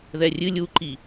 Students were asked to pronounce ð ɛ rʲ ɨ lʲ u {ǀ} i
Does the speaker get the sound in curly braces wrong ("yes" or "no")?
yes